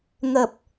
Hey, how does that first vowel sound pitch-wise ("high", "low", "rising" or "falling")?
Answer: low